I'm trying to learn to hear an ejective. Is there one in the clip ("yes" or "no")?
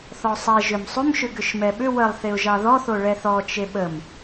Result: no